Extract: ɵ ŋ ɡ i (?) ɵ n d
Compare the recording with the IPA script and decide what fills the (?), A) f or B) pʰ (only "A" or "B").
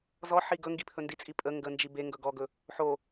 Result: B